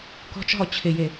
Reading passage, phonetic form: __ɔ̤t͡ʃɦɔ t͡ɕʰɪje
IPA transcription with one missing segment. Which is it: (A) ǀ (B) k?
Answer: B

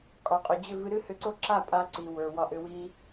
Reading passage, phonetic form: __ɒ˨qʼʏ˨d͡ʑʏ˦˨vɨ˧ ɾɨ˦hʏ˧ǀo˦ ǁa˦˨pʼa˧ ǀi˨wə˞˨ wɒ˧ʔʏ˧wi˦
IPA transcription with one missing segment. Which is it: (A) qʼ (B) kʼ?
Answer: B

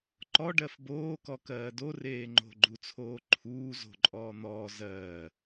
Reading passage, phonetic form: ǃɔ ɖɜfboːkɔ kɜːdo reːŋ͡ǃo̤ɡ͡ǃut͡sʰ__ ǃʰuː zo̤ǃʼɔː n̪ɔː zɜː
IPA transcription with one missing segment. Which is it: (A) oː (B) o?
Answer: A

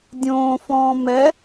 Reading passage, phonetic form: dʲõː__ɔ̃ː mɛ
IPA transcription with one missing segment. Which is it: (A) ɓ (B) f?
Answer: B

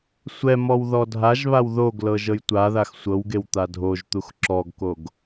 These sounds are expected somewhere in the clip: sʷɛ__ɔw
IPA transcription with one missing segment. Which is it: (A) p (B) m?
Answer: B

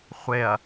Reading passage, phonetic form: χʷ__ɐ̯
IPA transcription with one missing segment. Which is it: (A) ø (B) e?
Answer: B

